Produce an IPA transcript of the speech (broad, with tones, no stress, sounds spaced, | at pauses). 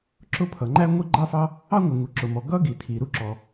ǁ ʊ˥ pʰ ʌ˩ ŋ͡ǃ æ˥ ŋʷ i˥ ɡ͡ǃ ɑ˥ f ɑ˥ | ɑ˥ ŋʷ ɪ˩ ŋ u˩ ǁ ʊ˩ m ɔ˩ ɡ ʌ˥ ɡ i˩ tʰ i˩ ɾ u˥ ǁ ɔ˩